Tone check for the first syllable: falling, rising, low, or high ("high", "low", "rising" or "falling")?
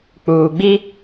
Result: low